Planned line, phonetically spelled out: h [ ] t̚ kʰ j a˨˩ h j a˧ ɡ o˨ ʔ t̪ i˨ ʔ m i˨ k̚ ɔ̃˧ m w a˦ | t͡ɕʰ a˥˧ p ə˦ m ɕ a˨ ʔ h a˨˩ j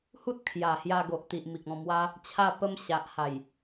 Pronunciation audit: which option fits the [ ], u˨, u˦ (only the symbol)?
u˦